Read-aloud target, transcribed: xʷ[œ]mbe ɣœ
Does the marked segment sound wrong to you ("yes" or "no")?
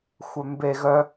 no